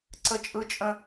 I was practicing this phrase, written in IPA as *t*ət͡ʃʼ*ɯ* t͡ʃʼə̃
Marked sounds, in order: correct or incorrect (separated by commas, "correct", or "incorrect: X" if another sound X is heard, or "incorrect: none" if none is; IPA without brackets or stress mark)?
incorrect: ǀ, correct